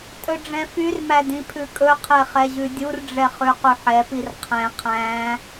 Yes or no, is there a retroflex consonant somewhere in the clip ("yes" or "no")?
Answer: yes